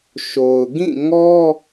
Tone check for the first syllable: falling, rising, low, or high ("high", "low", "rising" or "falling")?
low